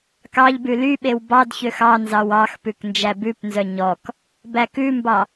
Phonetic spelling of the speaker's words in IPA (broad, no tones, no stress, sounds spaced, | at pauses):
k ɑ ʎ b ʉ l y ɓ e w b ɑ d ç ø x ɑ n z ɑ w ɑ x p ʉ k n d͡ʒ æ b ʉ p n z œ ɲ ɔ k | b æ k ʉ m b ɑ